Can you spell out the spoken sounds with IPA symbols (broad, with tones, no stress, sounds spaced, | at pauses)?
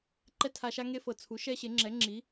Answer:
ǃ ɛ˥ tʰ a˧ ʃ a˥ ŋ e˥ f ɤ˩ t͡sʰ u˩˥ ʃ ɛ˥ ɕ e˩˥ ŋ͡ǁ ɛ˩˥ ŋ͡ǁ i˩˥